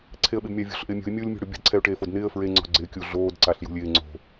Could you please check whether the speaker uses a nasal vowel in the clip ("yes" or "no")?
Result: no